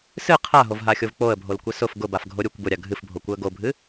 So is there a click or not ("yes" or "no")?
no